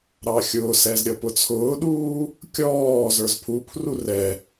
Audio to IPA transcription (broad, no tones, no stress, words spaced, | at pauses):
ɾɑxʲʊːsɛz ɾʲʌpʊt͡sʰʊːɗuː | kʲɔː zə˞zpʰupʰru rɛ